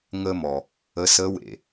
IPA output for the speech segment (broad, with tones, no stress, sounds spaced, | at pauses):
ŋ ə˧ m ɔ˩ | ə˧˥ s ə˧˥ w ḛ˩